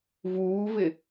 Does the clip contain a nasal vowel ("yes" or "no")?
no